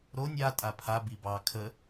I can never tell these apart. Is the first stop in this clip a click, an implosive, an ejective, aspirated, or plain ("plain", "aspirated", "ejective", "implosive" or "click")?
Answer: ejective